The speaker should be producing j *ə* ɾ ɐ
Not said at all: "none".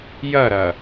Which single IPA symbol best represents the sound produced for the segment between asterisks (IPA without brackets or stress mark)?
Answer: ɐ